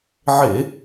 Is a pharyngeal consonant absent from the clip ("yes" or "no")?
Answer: no